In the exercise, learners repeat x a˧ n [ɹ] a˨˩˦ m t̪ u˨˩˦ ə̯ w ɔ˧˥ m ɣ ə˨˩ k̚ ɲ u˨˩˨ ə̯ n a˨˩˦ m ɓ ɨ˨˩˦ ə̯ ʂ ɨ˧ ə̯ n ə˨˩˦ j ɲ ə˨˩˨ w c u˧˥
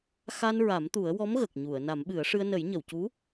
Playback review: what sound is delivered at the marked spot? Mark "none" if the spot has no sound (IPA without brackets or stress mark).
ɹ